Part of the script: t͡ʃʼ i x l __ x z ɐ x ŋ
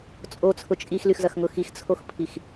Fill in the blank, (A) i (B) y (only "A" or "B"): B